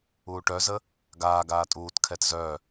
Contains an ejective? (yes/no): yes